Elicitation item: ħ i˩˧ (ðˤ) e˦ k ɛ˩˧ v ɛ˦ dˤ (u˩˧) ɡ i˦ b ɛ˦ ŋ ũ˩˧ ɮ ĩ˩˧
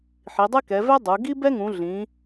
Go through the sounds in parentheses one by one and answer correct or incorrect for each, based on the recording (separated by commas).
incorrect, correct